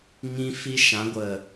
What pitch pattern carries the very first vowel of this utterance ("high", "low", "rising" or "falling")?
high